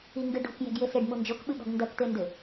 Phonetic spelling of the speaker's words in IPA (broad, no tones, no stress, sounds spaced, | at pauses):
i ŋ ɡ ɨ ɖ o̤ k j ɛ̤ ɡ j e s e ɖ m u n d͡ʒ o k ɓ ɨ ɠ ɔ̤ ɡ n d ɐ k t̪ e n d ɘ